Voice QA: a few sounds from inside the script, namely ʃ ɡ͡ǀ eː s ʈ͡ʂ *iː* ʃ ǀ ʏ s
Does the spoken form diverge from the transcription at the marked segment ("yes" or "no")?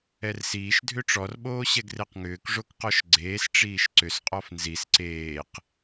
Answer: no